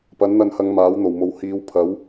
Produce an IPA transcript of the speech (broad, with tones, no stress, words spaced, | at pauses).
pɐ˨˥nn̪ɐ˧nhɐ˨˧ŋ maː˨˥wn̪o˨˩wmo˨w hiː˨˧w pʰɐ˨˥w